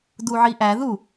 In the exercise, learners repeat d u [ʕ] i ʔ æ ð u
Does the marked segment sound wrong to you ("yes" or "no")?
no